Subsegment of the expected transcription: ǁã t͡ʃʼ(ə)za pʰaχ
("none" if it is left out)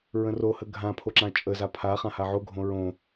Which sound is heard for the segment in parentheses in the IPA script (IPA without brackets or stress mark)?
ə